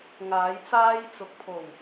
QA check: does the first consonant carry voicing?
yes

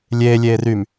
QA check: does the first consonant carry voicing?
yes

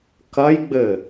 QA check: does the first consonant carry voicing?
no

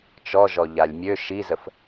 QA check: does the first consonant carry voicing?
no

